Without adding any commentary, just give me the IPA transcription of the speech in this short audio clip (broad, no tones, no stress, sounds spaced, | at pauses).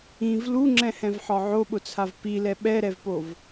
ĩ v l u ŋ͡ǁ ɛ̃ h ɛ̃ v ħ ɒ ʕ o ɓ ʊ t͡sʰ a v p i l ɛ ɓ ɛ ɾ ɛ v p o v